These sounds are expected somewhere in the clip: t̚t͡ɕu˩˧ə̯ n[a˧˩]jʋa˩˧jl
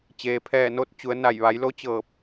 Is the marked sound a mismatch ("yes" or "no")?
no